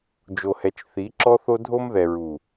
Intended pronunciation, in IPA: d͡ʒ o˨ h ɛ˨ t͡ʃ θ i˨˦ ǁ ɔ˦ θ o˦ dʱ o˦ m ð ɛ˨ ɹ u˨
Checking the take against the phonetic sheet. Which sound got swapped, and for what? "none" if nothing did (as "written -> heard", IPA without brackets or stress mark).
none